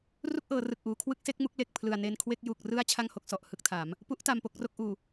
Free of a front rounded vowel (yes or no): yes